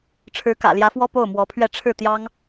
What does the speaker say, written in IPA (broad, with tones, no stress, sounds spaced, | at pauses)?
ʈ͡ʂʰ ɻ̩˧˥ k ä̰˨˩ l j ä˧˥ f w ɔ˥ p o˥˩ ʊ̯ m w ɔ˧˥ pʰ ɥ ɛ˥˧ ʈ͡ʂʰ ɻ̩˥˩ t̪ j ɑ˥ ŋ